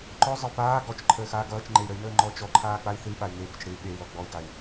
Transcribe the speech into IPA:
ǃ ɔ zˤ ə u̯ p aː ɡ ɔ t͡ʃ ǃʰ əː x aː ɡ ʌː t͡ʃ ŋ͡ǃ e i̯ ɾ ə i̯ n əː ŋ͡ǃ ɔ t͡ʃ ɔ ǃʰ aː k͡p a i̯ θ ɨ i̯ ɓ a y̯ ŋ e b ə t͡ʃ ɽ ɨ y̯ ɓ e y̯ l ɔ ɡ͡b ɔ i̯ ɡ a i̯

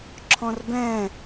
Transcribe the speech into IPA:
ǁʰ ɔ̃ r b ɛ̃

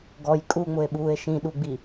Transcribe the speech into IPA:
ɡ ɔ j kʼ u ŋ͡m ʊ e̯ ɓ uː e̯ ʃ ĩ ɗ u ɡ͡b i

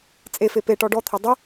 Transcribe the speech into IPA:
t͡sʼ e f e p e ʈ ɔ ɖ ɔ t̪ʰ ɐ dˤ ɐ

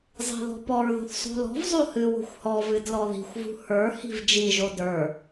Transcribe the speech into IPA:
zˤ i̤ ð ɔ̤ p ɔ ɹ ð o̤ θ sˤ o̤ l ɔ̤ v zˤ o h ɨ w o̤ xʷ h ɔ v ɨ d l ɔ ð i̤ xʷ v ṳ h ə˞ h i̤ v d͡ʒ i ʒ o d ə˞

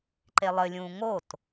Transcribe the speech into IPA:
ǃ e lˠ ɘ lʲ ũː ŋ o t

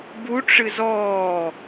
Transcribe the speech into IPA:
b u ʈ͡ʂ ɨ z ɔː

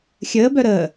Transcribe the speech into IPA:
xʲ əː b œ ɾ əː

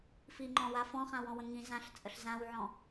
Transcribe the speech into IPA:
f i ŋ͡ǃ ɔ̃ w a f ɔ̃ χ ã w ɔ̃ w ə̃ ŋ ĩ z ã ɬ t͡sʼ ə ɬ z ã w ʕ ɔ̃

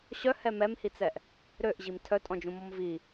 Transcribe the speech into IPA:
ɕ œ h ɛ m ɛ m h i t͡s ɛ ʔ | ɾ ø ʔ ʑ i m tʰ œ tʼ ɔ̃ d͡ʒ ũ m ɔ m v i

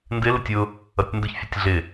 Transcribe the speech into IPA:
n d ɪ l ɪ tʲ ʊ | ʌ tʲ n d ʊ ç fʲ ʊ tʲ ɮ ɪ

